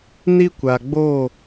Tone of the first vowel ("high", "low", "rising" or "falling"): high